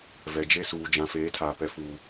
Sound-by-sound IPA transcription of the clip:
v ɛ˨ d͡ʒ e˦ s uː˨ d͡ʒ ã˨ f eː˨˦ tʰ aː˨ p ɛ˨ f uː˨

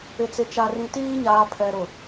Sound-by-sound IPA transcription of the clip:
ɪ˨ t͡s ɪ˨ t͡ʃ a˨ r ĩ˨ t iː˦ ɲ aː˨ pʰ ɛ˨ ɾ ʊ˨

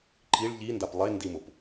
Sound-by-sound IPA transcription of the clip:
ǃ i ɭ ʎ i n d a p lˠ e n d i m ʊ p

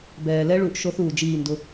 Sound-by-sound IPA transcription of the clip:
b ɛː˨ l ɛ˦ ɭ u˨ ʔ ʃ o˦ θ uː˨ d͡ʒ iː˦˨ n d ʊ˦

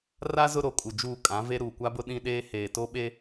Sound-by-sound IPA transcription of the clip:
r a˦ z ʊ˦ ɾ o˨ kʼ u˨ d͡ʒ uː˦˨ kʼ ã˨˦ v e˦ ɾ uː˨ kʷ a˦ b ʊ˦ ɗ ĩ˦ ɗ eː˦ h eː˨ t o˦ ɓ e˦

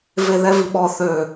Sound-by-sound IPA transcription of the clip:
v e ð ɛ v i ɓ ɔ θ ø

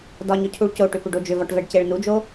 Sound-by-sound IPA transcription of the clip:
d ɒ ɲ ɵ cʰ u ɭ c o ʈ ʏ p ʏ ɖ o d͡ʒ ʏ v ɒ ʈ v ɛ ɖ c e ɭ n u d͡ʒ o

